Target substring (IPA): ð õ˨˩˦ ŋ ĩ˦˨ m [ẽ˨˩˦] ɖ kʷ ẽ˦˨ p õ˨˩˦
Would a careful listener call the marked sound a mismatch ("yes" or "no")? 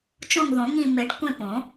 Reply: yes